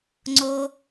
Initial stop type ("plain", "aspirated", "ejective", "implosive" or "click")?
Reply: click